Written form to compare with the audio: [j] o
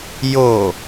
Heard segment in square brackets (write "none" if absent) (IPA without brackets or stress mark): j